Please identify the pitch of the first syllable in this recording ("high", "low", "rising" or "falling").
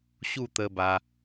falling